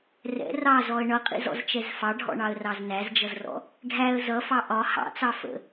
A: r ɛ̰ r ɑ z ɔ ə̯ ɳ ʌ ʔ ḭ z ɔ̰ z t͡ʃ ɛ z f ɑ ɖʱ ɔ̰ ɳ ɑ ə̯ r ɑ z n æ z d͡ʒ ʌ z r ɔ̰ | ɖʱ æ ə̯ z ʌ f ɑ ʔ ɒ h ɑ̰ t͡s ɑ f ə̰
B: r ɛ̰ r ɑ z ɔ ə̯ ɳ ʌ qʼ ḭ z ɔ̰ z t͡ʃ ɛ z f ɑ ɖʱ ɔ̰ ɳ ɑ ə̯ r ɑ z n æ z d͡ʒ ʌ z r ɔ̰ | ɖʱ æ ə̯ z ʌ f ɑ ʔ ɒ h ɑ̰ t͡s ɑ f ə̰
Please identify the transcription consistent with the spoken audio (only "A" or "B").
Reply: B